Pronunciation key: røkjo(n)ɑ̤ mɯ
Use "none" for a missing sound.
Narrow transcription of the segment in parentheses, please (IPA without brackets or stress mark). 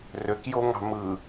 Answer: ŋ